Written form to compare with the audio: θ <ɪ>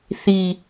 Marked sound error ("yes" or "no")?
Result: yes